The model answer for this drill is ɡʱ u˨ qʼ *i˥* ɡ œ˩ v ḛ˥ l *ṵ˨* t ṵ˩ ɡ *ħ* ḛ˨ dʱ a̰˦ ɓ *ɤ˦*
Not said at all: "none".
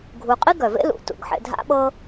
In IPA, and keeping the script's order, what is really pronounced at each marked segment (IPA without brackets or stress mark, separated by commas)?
i˥, ṵ˩, ħ, ɤ˦